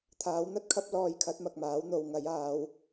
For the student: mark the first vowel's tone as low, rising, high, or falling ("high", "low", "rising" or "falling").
rising